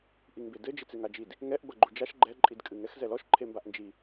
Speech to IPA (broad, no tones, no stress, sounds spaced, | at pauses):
ʔ i ŋ b e d ɘ d͡ʒ ɨ t͡s e ŋ a d͡ʒ i d | ŋ ɛ ʔ b ɐ ɡ͡ǃ u d͡ʒ a ʃ ɡ͡ǃ ɛ ǃʼ i d kʼ ɨ ŋ ɛ x z ɛ l ɔ ʃ ǃʰ e m b a ʔ n d͡ʒ i